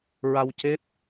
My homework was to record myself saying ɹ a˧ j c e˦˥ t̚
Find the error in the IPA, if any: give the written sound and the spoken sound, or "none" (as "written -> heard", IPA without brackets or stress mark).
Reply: j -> w